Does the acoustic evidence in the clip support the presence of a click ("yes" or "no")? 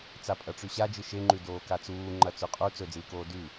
yes